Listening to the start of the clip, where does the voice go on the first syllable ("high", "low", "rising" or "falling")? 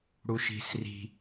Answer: high